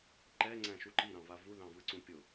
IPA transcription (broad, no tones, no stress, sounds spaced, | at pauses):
ǃ ɛ ŋ͡ǀ æ̃ ʃ u ǃ i ɾ ɑ̃ v a v u ð ɑ̃ v ɯ ǀ ũ pʲ ʊ